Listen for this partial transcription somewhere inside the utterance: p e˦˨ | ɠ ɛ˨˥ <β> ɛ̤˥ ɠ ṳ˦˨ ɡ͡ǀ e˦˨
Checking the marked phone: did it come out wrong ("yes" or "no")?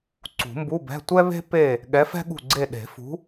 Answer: yes